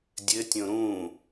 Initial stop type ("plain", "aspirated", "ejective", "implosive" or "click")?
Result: plain